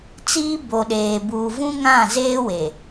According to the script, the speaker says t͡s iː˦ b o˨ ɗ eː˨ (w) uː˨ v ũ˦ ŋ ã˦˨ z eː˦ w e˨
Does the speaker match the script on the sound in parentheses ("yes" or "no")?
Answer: no